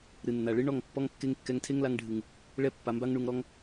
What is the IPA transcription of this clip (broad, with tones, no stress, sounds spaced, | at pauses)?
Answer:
ɾ ɨ˨ nː a˨ ɭ ɨ˦ ɳ ɔ˦˨ ŋ pː ɔ˦ ŋ kː e˦ ŋ kː ɛ˧ ŋ tʰ e˦ ŋ l a˧ ŋ ɖʱ ɨ˨ ŋ | ɭ ɛ˦ pː a˧ m b a˦ ŋ ɳ u˧ ŋ ɾ ɔ˦ ŋ